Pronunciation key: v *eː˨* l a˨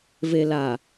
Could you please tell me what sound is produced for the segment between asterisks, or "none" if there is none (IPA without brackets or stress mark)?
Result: e˨